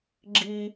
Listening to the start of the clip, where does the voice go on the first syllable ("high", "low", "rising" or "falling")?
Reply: high